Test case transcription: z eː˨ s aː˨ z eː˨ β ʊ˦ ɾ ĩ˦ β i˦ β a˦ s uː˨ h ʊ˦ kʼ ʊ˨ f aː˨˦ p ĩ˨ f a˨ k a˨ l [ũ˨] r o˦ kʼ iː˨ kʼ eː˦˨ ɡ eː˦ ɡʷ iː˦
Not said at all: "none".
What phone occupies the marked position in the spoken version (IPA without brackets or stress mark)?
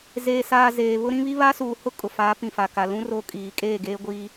ũ˦